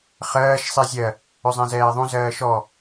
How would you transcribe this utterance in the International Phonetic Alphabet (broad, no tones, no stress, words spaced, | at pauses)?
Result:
χɜːʃ sˤizʲɜ | ʏzˤɛ̃zɛːðˤũ zɜːʃɔ